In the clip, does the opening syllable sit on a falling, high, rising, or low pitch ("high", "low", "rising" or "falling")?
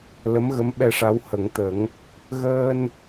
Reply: rising